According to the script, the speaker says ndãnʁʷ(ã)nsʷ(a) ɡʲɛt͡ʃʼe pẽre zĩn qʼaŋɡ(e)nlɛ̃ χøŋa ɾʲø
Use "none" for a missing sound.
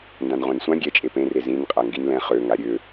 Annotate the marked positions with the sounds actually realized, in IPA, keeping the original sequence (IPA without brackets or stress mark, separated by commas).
ã, ã, i